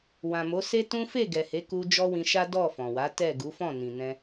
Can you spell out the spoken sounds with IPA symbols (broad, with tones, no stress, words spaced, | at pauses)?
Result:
wã˨mo˨˦ se˦tũ˦ fe˦˨ɡɛ˨he˨˦ku˧ d͡ʒɔ˦wĩ˧ʃa˦dɔ˦˨ fɔ̃˨wa˨˦ tɛ˦˨ ɡu˨˦fɔ̃˦˨nĩ˨nɛ̃˧